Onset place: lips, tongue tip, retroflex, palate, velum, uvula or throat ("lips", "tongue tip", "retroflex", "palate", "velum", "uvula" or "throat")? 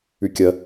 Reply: velum